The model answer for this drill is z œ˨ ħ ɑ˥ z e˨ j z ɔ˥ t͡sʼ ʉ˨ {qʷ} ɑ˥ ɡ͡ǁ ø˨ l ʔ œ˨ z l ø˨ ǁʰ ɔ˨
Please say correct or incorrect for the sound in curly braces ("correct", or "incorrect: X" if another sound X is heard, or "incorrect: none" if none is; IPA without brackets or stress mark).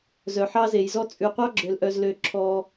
correct